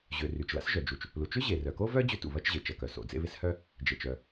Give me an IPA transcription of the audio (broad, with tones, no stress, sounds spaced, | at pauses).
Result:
ʑ ø˩ r y˩ t͡ʃ l a̰˥ s ʒ œ˩ d͡ʒ u˩ t͡ʃ | l u˩ t͡ʃ ʏ˥ ʑ e˩ r œ˩ k o˥ v œ˥ d͡ʑ ʏ˥ t ṵ˩ β ɐ˥ t͡ʃ ʑ e˩ t͡ʃ ɐ˩ k œ˩ s o̰˩ d͡z ḛ˥ β ɪ˥ s h œ˥ | d͡ʒ e˩ t͡ʃ œ˩